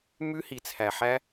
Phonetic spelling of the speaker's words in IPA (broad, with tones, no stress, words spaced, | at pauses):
mʉ˦hi˨t͡sʰæ˨ħæ˦